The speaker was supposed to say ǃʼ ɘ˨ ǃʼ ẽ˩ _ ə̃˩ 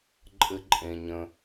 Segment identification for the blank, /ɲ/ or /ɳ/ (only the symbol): ɲ